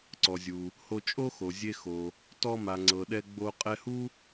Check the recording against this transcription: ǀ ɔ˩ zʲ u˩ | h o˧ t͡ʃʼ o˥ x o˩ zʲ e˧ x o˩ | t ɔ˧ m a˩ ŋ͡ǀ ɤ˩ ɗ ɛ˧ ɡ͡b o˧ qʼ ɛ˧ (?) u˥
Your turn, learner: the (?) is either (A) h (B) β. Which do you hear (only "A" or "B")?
A